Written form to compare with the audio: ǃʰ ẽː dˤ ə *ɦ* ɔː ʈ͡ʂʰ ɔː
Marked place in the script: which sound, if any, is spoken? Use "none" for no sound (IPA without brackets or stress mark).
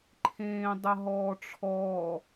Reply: ɦ